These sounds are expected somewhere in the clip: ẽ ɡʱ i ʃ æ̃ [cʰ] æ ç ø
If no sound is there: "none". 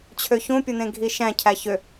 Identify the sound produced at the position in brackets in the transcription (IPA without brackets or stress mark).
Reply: cʰ